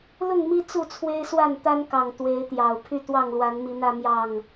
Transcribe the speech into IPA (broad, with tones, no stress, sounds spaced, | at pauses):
l ʊ˥˨ ŋ m i˦ t͡s u˥˨ t͡sʰ w e˦ ɪ̯ s w a˥˨ n t̪ a˦ n k ɑ˨˩ ŋ t̪ w e˨˦ ɪ̯ t̪ j ɑ˨˩ ʊ̯ pʰ y˥˨ t̪ w ɑ˥˨ ŋ l w a˨˦ n m i˨˦ n ä˦ m j ɑ˥˨ ŋ